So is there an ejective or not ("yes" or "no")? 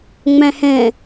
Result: no